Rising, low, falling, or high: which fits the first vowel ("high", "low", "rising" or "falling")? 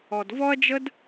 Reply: low